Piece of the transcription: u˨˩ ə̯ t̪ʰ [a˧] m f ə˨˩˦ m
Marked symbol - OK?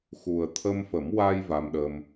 no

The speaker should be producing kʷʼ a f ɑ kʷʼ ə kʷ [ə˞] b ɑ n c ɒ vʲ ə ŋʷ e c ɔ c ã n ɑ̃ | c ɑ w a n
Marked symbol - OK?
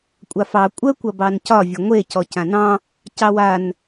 no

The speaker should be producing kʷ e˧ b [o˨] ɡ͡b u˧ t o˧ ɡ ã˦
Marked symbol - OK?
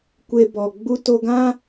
no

